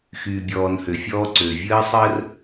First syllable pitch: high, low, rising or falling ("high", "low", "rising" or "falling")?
low